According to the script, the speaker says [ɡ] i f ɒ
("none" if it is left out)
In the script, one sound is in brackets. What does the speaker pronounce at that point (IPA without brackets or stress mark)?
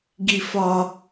ɡ